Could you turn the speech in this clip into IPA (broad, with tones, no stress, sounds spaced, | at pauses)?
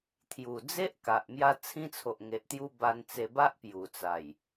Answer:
t̪ʰ j u˨˩ d͡z e˦ ʔ k a˨ ʔ m j a˧ t͡sʰ ĩ˧ t͡sʰ o˨ ʔ ŋ e˨ ʔ t̪ j u˧ b a˧ n t͡s e˧ b a˦ ʔ p j u˨˩ t͡s a˨˩ j